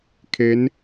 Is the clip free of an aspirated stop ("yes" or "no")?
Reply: no